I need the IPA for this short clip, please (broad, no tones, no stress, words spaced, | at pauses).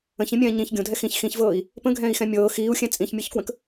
ə̃çĩmʲɛ̃ː ɲĩç ɡʲõdʱɛ xĩç xĩçvɤːi̯ | pə̃ɡʱɛ̃ːi̯xɛ̃ mʲɤː xiːu̯xʲɛ̃ t͡sʼĩçmʲɤçkwə̃k